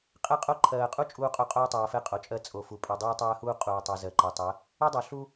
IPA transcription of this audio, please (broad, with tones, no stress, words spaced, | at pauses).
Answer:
qʼɛ˦qʼo˦ ǃʰɜː˨qʼu˦ t͡ʃʼuː˦qʼo˦ qʼoː˦tˤɜː˨fɛ˦ qʼo˨t͡ʃʼɜ˦ t͡sʼo˨fu˨ pʼɛ˨dˤoː˦tˤɜː˦huː˦ qʼuː˨tˤɜ˨ zɜ˨ǃɜ˨tˤɜ˨˦ | u˦dˤo˨ ɬu˦